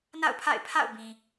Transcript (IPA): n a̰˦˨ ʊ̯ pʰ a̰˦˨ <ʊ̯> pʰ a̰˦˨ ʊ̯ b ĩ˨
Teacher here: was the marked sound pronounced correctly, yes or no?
no